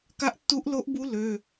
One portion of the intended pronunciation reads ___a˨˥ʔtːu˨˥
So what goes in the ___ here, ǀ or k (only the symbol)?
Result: k